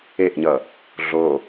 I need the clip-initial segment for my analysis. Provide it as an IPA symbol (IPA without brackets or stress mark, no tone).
e